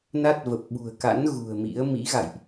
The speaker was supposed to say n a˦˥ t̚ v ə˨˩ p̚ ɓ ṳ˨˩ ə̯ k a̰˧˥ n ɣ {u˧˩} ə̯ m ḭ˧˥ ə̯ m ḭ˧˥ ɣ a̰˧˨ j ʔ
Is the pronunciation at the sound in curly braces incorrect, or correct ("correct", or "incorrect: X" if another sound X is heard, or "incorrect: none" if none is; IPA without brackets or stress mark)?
incorrect: ṳ˨˩